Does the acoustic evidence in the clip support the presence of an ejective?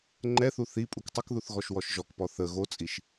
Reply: yes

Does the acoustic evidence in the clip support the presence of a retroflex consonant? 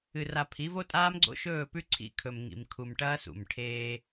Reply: yes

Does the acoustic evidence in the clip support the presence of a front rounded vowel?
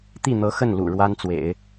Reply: no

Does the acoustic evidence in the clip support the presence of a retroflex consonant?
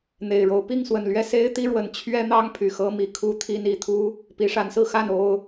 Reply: yes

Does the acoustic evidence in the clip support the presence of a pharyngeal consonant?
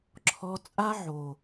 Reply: yes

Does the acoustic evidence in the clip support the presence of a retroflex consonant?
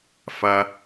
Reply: no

